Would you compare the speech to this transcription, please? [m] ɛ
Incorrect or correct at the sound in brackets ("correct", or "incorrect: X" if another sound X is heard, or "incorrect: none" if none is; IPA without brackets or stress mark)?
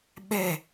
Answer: incorrect: ɓ